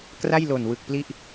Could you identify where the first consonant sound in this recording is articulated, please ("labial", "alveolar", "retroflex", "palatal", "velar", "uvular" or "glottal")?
velar